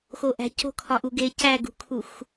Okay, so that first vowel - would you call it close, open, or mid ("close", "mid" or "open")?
mid